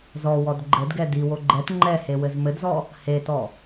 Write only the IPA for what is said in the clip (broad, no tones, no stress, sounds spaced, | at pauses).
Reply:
z ɔ w ɔ d ɡ͡ǃ ɘ d ɡ ɛ d i w o ɡ͡ǃ ɛ t ŋ͡ǃ ɛ h e w ɘ z m ɘ d z ɔ | h e t ɔ